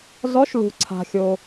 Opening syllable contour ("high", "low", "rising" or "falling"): rising